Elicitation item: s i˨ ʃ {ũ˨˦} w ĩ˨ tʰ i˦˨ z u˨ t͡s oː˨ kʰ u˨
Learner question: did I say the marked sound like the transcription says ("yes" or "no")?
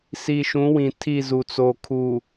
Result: yes